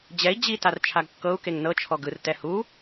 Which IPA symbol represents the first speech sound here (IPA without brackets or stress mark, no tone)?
d͡ʑ